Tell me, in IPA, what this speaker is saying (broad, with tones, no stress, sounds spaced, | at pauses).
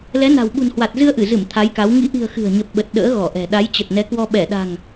l ɛ˨˦ n a̤˨˩ w ɓ ṳ˨˩ n h w a˨˩ t̚ z ɨ˧ ə̯ ʔ ɨ˧˩ z ɨ˧˩ m t̪ʰ a˨˦ j k a˨˦ w ŋ ḭ˧˥ ʔ i̤˨˩ ə̯ x ɨ̤˨˩ ə̯ ɲ ə˨˩ p̚ ɓ ə˨˩ t̚ ɗ ə̰ː˧˥ ɣ ɔ˧˩ ʔ ɛ̤˨˩ ɗ a˨˦ j t͡ɕ ə˨˩ t̚ n ɛ˨˦ k w ɔ˧ ɓ ɛ˧˩ ɗ a̤˨˩ ŋ